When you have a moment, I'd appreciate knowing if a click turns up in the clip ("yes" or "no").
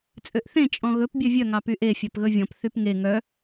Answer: no